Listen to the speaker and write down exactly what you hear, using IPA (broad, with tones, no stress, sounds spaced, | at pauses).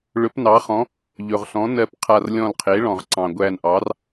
ɭ ɵ˩˥ p n ɑ˩˥ χ ɔ̃˩˥ | ʎ ɵ˩ ʁ ɬ ɔ̃˩˥ n ɜ˧˩ p qʰ a˧˩ r lʲ ɔ̃˧˩ l qʰ e˩˥ ɭ ɔ̃˩ ʁ ǀ ɑ̃˩ ɡʷ æ˧˩ n ʔ ɑ˩˥ r